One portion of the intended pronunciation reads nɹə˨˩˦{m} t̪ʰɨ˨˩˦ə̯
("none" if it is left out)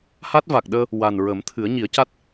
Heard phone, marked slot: m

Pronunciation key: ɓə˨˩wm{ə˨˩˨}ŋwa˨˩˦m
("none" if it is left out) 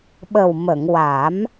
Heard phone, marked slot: ə˨˩˨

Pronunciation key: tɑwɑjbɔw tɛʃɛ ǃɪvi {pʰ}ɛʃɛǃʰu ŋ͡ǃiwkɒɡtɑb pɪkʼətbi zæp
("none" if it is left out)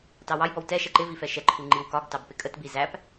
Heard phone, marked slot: f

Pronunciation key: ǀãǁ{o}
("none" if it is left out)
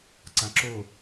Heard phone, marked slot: o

